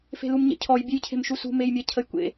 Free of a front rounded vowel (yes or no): yes